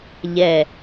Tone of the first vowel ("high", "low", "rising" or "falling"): low